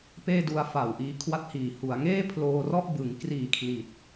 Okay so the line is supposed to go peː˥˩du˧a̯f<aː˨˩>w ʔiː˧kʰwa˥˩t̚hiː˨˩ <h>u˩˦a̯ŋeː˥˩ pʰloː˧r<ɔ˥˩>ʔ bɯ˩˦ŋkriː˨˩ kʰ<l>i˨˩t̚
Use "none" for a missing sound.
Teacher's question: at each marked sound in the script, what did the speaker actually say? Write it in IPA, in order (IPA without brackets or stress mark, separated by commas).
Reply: a˨˩, h, ɔ˥˩, l